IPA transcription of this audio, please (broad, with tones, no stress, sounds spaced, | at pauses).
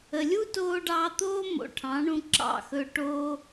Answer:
ə˨ lʲ u˦ t oː˧ ɖ ɑː˧ t̪ oː˦ m o̰˨ ʈʰ ɑ̃˨˦ ɳ ũ˧ ǁ ɑ̰˦˨ x ɵ˧ ʈ o˦